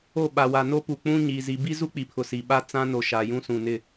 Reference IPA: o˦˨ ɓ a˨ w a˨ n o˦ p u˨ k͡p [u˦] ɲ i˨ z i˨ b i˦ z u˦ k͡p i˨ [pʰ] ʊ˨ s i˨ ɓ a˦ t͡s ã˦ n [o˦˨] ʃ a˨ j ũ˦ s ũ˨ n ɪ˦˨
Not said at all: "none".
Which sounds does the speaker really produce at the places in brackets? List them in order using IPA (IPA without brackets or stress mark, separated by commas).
ũ˦, pʰ, o˨